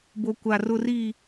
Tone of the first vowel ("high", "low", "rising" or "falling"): low